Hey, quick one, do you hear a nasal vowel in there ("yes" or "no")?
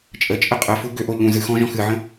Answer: yes